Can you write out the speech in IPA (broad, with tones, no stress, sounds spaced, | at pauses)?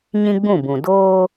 ɲ ĩ˦ ɡ͡b ũ˦˨ b ũ˨ d oː˦